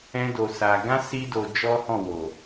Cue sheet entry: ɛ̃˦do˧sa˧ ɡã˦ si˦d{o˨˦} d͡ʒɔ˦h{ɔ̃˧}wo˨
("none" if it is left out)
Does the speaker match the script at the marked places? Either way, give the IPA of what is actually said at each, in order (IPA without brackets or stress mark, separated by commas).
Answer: o˧, ɔ̃˦˨